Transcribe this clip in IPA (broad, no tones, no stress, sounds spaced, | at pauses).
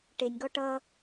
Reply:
ʈ e nʲ ɡ ɔ ʈ ʌ